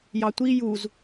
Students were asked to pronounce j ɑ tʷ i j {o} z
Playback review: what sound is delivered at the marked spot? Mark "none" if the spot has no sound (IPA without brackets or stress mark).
u